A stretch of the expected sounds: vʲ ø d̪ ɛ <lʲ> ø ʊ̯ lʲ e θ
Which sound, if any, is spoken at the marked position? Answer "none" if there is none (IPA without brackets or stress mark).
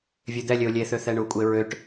lʲ